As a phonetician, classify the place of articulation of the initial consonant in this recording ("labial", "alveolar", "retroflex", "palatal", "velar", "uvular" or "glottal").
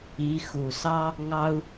velar